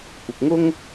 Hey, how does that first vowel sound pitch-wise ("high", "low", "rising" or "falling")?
low